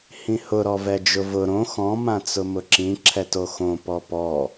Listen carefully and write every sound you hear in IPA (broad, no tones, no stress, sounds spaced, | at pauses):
h ĩ h ʊ ɾ ɔ v ɛ d͡ʒ ʊ v ʊ ɾ õ x ɔ̃ m ã t͡s ʊ m ʊ ǁ ĩ ǁʰ ɛ t o x õ p ɔ p ɔ